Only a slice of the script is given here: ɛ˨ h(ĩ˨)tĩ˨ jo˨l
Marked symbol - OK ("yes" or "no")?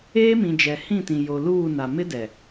no